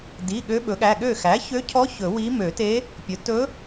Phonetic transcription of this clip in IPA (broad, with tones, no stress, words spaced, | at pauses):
di˩˧˩ ɠø˧˥ɓɵ˩˥ɠæ˩˧˩ɠø˥˩ xæ˩˥çø˧˥cʰɔ˧˥ çɵ˨˩˦wi˧˥ mø˨˩˦te˧˥ | pʲɵ˩˥tɵ˧˥